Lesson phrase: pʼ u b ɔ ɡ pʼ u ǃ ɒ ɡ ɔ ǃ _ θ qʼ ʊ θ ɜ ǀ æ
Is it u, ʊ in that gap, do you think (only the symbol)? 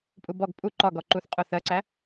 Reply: u